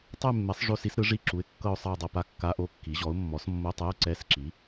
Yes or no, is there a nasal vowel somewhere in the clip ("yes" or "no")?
no